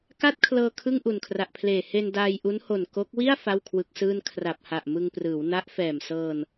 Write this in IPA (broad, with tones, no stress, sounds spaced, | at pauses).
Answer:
k a˥˩ t̚ kʰ l ɤː˧ kʰ ɯ˥˩ ŋ ʔ u˨˩ n kʰ r a˨˩ ʔ pʰ l eː˨˩ h e˧ n d aː˧ j ʔ u˦˥ n h o˨˩ n k o˦˥ k̚ w i˥˩ a̯ f a˥˩ w kʰ w ɯ˦˥ k̚ s ɯː˥˩ n kʰ r a˨˩ p̚ h a˨˩ ʔ m ɯ˧ ŋ p r ɯː˩˦ w n a˦˥ ʔ f ɛː˨˩ m s ɤː˧ n